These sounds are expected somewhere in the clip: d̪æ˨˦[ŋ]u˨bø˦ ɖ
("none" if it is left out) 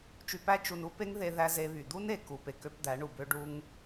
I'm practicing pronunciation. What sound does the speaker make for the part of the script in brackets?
ɳ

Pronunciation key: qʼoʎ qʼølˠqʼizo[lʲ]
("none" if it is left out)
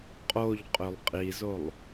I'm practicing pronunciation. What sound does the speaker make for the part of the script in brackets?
lˠ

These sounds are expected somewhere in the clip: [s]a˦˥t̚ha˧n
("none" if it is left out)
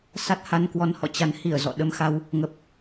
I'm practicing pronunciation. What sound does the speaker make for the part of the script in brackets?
s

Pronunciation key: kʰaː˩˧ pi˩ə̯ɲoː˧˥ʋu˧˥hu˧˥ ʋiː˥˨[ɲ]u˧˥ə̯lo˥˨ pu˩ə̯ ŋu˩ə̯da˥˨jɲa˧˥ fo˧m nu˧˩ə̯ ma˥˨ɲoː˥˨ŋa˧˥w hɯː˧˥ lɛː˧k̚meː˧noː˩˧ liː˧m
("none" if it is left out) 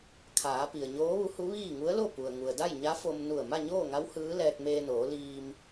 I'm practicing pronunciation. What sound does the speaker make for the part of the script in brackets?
ŋ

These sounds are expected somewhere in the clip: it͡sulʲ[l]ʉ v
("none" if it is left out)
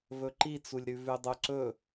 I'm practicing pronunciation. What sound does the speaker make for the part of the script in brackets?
ɾ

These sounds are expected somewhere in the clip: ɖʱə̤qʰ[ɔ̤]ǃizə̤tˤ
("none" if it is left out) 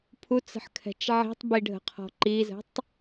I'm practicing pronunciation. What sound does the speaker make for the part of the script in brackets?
ɔ̤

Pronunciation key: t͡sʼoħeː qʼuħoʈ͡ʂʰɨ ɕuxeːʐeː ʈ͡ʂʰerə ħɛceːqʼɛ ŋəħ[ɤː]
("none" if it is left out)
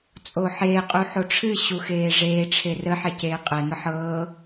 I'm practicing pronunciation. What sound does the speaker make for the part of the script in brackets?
ɤː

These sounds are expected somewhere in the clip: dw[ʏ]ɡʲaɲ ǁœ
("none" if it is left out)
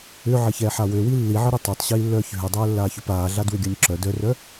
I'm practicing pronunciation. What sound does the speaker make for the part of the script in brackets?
ʏ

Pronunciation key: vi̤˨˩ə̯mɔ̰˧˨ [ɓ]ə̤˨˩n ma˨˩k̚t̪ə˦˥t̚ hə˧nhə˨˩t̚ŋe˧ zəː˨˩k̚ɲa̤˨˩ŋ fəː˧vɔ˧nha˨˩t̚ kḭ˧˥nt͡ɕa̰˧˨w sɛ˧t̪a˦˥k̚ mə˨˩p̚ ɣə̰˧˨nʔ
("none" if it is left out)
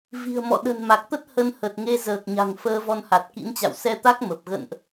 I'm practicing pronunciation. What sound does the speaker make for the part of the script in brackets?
ɗ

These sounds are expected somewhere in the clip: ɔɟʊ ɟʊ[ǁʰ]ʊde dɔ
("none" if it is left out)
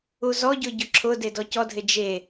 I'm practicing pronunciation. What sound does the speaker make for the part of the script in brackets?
ǁʰ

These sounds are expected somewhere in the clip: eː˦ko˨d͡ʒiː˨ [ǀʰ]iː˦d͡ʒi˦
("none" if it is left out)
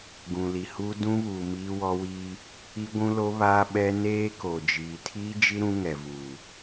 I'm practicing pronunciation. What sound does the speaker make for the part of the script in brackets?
tʰ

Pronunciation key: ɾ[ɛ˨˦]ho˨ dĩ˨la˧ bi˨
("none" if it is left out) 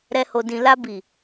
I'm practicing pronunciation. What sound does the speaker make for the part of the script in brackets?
ɛ˨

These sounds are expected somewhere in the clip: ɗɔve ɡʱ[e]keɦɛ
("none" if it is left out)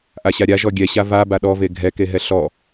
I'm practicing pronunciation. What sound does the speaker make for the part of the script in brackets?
ɛ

